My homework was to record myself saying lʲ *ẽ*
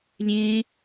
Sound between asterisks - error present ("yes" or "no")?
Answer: no